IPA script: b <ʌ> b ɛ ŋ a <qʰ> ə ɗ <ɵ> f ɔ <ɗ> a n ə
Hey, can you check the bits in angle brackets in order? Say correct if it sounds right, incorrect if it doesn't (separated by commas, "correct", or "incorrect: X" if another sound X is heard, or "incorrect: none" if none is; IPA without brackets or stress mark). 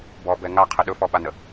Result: incorrect: ɔ, correct, correct, incorrect: ɓ